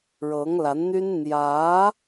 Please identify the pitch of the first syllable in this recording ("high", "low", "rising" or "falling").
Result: rising